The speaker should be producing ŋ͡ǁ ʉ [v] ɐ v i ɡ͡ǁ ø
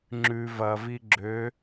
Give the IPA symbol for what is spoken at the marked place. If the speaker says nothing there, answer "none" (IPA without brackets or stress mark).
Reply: v